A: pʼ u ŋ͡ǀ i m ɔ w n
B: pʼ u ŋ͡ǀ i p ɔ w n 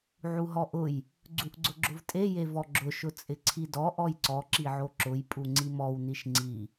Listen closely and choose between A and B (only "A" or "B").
A